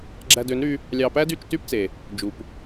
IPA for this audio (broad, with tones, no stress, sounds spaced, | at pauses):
ɡ͡ǁ æ˧ d ø˨˦ n ɾ y˧ | lʲ ɑ˧ p æ˦ d y˦˨ t͡ʃ t y˦ p t͡s e˨ | d͡ʒ u˨ p